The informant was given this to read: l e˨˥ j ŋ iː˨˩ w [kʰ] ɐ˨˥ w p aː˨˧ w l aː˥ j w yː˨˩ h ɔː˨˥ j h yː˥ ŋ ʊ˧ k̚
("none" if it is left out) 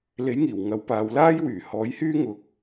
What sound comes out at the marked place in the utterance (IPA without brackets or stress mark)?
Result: ŋ